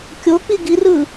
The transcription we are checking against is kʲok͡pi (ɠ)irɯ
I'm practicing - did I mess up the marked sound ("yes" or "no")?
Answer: yes